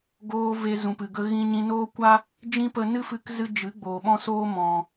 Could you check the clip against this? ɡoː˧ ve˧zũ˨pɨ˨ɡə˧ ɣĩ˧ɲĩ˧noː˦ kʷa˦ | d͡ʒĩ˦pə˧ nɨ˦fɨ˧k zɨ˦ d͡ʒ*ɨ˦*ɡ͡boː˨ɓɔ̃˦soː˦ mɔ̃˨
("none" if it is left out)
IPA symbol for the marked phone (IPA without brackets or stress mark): ɨ˨˦